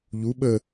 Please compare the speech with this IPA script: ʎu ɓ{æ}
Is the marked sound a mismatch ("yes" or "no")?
yes